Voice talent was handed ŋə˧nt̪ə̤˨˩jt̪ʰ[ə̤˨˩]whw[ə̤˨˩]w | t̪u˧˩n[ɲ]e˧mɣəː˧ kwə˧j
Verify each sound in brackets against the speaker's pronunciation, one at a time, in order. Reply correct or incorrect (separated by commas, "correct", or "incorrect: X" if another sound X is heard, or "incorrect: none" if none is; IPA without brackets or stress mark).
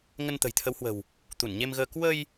incorrect: ə˨˦, correct, correct